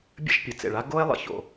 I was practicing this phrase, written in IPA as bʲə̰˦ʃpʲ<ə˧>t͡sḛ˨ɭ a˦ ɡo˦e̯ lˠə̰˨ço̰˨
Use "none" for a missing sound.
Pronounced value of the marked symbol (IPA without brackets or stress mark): ə˨